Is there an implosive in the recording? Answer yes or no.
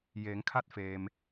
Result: no